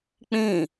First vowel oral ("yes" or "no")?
no